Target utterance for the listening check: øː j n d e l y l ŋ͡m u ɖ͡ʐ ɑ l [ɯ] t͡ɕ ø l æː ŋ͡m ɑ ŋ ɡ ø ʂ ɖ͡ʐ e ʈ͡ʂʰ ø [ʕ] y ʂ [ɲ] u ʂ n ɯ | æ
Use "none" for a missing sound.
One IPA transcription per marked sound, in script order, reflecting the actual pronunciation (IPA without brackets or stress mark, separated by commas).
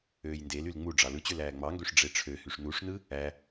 ɯ, h, n